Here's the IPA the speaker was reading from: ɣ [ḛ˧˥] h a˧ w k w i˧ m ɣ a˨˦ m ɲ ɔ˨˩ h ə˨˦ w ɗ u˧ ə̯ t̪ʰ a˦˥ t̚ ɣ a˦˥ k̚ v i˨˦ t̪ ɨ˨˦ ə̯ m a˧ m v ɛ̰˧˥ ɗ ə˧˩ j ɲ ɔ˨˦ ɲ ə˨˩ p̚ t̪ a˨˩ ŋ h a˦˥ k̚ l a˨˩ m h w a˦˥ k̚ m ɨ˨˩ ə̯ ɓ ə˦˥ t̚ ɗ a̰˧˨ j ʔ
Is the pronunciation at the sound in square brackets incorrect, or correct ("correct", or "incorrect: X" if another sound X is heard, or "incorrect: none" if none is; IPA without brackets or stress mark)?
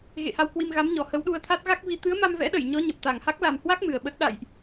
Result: incorrect: ḛ˧˨